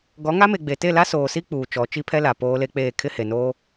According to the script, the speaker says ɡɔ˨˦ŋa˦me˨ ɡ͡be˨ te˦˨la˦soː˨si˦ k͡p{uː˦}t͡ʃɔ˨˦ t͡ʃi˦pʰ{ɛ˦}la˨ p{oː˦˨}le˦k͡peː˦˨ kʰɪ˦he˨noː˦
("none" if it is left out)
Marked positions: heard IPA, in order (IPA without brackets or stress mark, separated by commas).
uː˨, ɛ˦, oː˦